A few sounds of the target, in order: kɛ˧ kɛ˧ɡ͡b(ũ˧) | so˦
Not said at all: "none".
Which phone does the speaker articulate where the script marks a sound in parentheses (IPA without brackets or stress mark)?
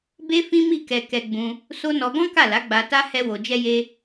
ũ˧